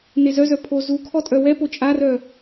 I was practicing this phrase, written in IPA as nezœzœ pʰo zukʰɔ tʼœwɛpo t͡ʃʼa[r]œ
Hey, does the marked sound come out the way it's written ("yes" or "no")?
yes